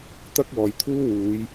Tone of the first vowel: high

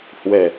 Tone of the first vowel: low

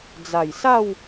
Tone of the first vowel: low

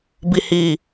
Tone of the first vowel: low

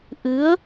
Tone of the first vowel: rising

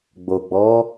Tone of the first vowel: low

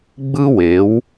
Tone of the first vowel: high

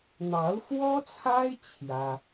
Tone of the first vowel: rising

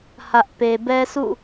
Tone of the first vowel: high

